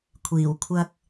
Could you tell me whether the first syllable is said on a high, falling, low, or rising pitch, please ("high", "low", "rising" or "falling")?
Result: low